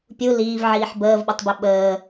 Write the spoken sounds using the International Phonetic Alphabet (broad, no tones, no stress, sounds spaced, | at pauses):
pʲ u l iː v ʕ iː ħ b əː v ɓ ə tˤ b ø ɓ əː